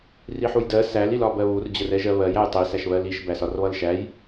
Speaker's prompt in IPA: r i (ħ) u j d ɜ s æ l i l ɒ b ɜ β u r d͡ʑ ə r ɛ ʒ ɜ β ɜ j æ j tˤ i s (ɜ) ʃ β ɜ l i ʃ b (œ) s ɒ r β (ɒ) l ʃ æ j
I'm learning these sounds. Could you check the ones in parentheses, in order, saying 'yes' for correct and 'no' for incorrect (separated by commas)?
yes, no, no, no